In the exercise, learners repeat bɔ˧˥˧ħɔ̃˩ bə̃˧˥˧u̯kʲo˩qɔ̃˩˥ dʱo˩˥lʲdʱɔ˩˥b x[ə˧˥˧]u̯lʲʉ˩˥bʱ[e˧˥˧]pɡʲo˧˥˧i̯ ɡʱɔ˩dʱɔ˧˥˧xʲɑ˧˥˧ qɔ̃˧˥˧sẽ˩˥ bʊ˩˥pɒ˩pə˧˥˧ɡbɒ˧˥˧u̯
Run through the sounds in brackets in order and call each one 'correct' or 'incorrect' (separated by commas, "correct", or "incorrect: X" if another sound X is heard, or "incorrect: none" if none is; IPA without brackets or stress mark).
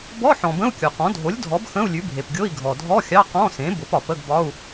incorrect: ə̃˧˥˧, incorrect: e˩